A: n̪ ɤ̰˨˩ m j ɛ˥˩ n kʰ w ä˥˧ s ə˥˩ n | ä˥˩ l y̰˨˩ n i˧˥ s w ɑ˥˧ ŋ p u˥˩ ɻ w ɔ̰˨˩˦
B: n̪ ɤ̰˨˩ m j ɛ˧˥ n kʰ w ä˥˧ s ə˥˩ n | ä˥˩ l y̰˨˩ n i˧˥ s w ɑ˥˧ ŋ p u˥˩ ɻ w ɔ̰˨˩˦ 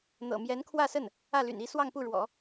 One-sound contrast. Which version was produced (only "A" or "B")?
B